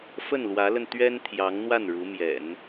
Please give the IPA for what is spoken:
fə˥˩nlwä˧˥lə˧n t̪ɥɛ˥n t̪ʰjɑ˧˥ŋn̪wa˥˩n ɻu˧˥mjɛ̰˨˩˦n

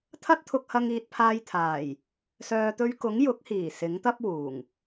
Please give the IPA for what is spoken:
t̪ʰɐ˥t̚t̪ʰʊ˧k̚hɐ˧ŋ iː˨t̚pʰaː˧jt̪ʰaː˨˩j | sœː˨t̪ɵ˧ɥkʊ˨˥ŋ jʊ˨˥k̚hiː˨˩ sɪ˨˥ŋt̪ɐ˥p̚wuː˨˩ŋ

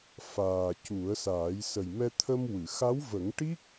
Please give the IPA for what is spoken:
faː˨˩ cu˨˩˦ə̯saː˨˩˦j sə˨˩jmɛ˧ t̪ʰə˧mwɨ˨˩˨xa˧˥w və˨˩˦ŋʈi˦˥k̚

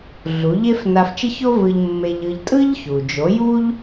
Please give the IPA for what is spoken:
ɮu˩˥ʎe˥f na˧ft͡ʃɯ˥ço˥vɯ˧ʎ mːe˧ʎɯ˧ʎ tʼɯ˥ʎçu˩d͡ʒo˩˥ ju˥ʎ

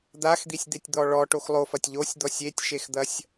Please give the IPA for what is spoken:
d̪axd̪isʲd̪etʲd̪ɔ ɭɔʈox lˠofɐtʲ ʎosʲd̪ɔ sʲetʲʃexd̪ɐsʲ

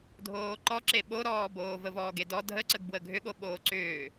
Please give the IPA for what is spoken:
dʱoːǃɔǁe ɓoɾɔːboː vəvɔːɡedɔ dʱəǀəɡbwə ɡʱʏɠo ɓoːǀʏː

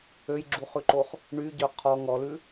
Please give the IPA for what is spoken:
øjɡ͡ǁuχʉǃoχ | ɳyɟœ qʰɔ ŋɔlʉ

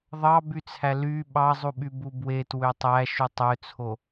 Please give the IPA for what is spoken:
ðˤɑbyt͡sʰæ ly ɓɑzˤuɓybu bwe twøtˤæ ʃutˤøt͡sʰo

